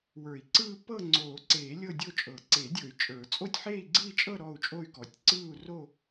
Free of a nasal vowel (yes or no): yes